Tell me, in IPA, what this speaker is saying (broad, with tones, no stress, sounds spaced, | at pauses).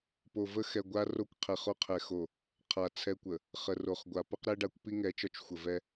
p o˨ v ə˦ x ɛ˨ ɡʷ a˦ r o˦ kʷ qʰ ɛ˨ χ o˦ qʰ ɛ˨ x o˨ | qʰ a˨ t͡sʰ ɛ˦ kʷ ə˨ | χ ə˨ r o˨ χ ɡʷ a˨ p ə˦ q ɾ ɛ˦ ɖ a˨ kʷ p i˦ ŋ ɛ˨˦ t͡ʃ ɒ˦ t͡ʃ xʷ ə˨ v ɛ˦